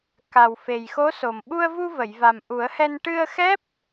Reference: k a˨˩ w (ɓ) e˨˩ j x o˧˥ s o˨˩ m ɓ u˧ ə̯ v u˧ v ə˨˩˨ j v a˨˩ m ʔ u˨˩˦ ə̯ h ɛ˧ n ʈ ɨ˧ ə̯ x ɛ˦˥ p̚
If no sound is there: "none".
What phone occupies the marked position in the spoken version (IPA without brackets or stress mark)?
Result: f